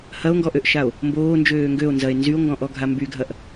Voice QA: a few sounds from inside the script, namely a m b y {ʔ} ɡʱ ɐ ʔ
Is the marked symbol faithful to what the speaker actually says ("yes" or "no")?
no